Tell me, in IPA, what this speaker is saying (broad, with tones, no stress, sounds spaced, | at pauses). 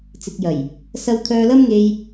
t͡s ɪ˨ k̚ j ɐ˨˩ j | s ɐ˧ w t̪ʰ œː˧ l ɐ˥ m ŋ e˧ j